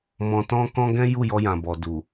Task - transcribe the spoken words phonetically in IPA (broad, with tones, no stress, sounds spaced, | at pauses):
m ɔ̃˧ t ɔ̃˦ k ɔ̃˦ ɡ ɛ̃˦ j u˦˨ j ɔ˧ j ã˨ b ɔ˨ d u˨